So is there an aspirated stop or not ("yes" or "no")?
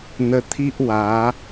yes